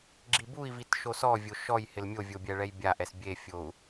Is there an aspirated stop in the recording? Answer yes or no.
no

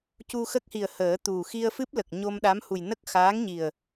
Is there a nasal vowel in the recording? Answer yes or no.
no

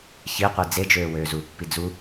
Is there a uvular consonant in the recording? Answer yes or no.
yes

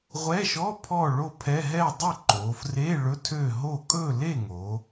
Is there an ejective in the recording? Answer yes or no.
yes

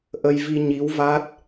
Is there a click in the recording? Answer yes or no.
no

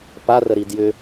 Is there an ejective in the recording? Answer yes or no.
no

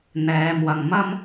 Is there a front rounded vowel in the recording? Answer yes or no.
no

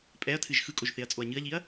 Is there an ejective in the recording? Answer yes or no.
yes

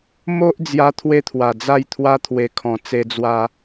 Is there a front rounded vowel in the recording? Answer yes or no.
no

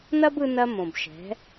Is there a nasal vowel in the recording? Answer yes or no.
yes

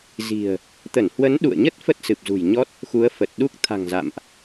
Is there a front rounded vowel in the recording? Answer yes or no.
no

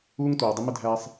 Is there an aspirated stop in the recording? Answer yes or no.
no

